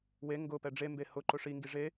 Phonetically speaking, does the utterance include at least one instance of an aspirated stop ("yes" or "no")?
no